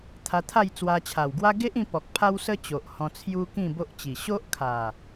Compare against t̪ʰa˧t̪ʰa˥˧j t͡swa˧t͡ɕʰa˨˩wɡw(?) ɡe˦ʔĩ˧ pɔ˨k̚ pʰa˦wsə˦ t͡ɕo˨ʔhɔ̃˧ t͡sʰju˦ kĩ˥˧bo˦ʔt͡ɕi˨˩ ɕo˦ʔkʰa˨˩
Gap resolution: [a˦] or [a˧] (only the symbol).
a˦